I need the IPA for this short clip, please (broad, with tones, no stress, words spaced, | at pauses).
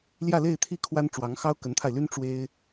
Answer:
ljä˥˧le˥˧ɪ̯t̪ʰi˥˩ kʰwa˥nʈ͡ʂwɑ˧˥ŋxɑ˥ʊ̯ kə˧˥nt̪ʰa˧ɪ̯ly˥n ʈ͡ʂwe˥ɪ̯